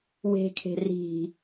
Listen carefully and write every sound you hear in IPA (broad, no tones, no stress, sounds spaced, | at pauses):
w e̤ kʰ e̤ r i̤